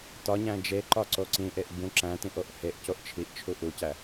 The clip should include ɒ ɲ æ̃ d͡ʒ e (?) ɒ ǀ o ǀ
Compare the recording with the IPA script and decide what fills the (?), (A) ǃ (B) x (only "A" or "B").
A